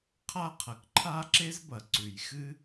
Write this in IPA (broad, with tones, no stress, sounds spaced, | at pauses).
qʰ a˥ qʰ ɐ˩ k ǃʰ a˧ ǁ e˧ z b ɐ˩ ǀ ʉ˩ j x ɨ˥